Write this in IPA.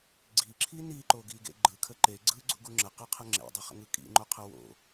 ɡ͡ǀ i ǁʰ i n i ǃ o ɡ i ɡ ḛ ɡ͡ǃ ɯ kʰ ə ǃ e ɡ͡ǀ ɯ ɡ͡ǀ ṵ ɡ u ŋ͡ǁ ə q ɯ qʰ ə ŋ͡ǁ ḛ dˤ ə χ ə̰ ŋ ɯ kʼ ḭ ŋ͡ǃ o qʰ ə w o̰

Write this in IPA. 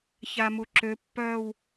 ç a m u ǁ ø pː œː w

